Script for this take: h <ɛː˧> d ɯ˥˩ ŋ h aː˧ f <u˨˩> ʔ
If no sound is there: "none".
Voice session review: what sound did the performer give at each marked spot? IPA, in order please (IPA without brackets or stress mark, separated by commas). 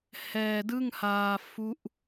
ɛː˧, u˦˥